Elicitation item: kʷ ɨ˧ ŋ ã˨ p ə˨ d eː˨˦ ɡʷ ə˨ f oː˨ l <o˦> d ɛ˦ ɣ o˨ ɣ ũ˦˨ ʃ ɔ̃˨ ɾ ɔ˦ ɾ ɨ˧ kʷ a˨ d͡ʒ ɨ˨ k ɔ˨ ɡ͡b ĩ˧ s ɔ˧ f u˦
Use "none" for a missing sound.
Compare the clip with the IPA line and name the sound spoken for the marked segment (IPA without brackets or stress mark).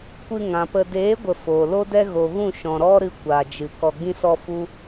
o˦